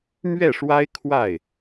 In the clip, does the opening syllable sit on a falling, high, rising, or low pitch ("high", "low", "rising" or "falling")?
falling